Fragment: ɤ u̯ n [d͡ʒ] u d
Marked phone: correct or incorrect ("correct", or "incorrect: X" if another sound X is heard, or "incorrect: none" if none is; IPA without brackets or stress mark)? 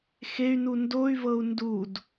incorrect: d